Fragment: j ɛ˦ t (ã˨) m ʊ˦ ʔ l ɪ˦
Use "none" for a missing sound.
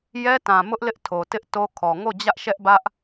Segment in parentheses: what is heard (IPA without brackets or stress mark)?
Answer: ã˨